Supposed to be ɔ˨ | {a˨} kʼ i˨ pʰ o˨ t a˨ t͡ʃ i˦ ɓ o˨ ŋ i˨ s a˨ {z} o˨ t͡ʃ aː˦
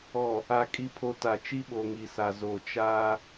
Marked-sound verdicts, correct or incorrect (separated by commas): correct, correct